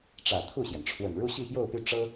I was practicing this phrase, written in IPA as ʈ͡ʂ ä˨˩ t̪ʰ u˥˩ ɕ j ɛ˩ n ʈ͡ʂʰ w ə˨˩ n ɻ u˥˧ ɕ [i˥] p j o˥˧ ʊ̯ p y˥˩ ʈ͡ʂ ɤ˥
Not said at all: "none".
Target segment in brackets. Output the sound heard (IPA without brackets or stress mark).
i˥˧